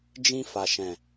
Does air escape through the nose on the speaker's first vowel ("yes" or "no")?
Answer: yes